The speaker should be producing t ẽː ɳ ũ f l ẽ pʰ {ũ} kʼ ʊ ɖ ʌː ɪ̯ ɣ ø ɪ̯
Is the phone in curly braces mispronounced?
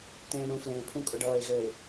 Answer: no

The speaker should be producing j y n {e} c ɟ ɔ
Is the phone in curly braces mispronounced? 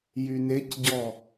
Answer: no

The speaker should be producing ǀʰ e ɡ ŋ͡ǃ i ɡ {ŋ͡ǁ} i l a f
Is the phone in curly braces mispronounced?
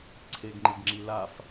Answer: no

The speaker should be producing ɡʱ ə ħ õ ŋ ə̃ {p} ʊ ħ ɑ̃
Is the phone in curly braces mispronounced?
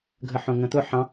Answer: yes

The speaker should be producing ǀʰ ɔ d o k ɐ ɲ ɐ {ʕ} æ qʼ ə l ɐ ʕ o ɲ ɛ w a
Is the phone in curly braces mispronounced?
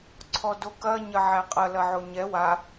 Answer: no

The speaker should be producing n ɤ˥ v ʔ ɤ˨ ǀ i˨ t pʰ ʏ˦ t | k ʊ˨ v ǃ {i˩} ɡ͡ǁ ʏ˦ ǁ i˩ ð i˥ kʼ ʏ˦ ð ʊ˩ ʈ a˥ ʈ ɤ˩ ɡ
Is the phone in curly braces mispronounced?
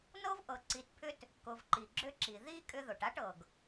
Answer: no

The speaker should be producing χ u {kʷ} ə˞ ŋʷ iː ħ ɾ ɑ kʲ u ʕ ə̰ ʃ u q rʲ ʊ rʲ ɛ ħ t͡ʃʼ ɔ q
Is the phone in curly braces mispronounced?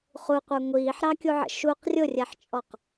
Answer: yes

